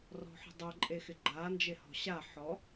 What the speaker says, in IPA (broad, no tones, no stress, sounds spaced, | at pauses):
r ɔ̤ ħ ə̤ dˤ ɛ ǃʼ e x ɪ ɡ͡ǃ a n d͡ʒ e h ɔ̤ ɕ a ħ ɔ